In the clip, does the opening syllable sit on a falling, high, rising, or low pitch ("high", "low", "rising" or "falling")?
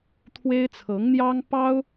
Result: high